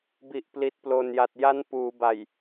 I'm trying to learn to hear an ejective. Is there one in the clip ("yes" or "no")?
no